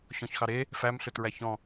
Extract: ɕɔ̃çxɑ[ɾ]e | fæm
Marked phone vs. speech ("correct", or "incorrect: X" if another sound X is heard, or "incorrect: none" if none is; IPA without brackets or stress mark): correct